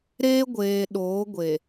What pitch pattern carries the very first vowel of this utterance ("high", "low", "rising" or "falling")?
high